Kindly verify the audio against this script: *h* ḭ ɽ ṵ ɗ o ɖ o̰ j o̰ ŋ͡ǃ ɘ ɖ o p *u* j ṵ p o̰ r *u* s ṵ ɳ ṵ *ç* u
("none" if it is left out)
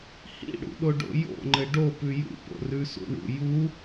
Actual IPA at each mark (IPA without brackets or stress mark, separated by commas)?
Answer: h, ʉ, ʉ, j